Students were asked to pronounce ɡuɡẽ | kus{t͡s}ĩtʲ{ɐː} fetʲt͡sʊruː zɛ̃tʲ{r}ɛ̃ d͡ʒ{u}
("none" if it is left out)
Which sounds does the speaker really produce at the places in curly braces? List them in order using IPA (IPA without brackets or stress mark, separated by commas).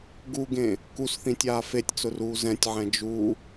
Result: θ, aː, ʕ, u